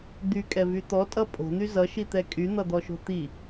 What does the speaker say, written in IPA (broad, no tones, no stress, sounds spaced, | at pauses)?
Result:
d̪ y kʼ ɛ v y t̪ ɔ tʼ ʌ pʼ o̤ n̪ y z ʌ ʃ i t̪ ɛ kʼ y n̪ ʌ d̪ ɔ ʃ o̤ t̪ i